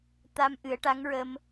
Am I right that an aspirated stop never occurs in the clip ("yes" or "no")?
yes